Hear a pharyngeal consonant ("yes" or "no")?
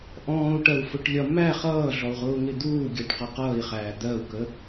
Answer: no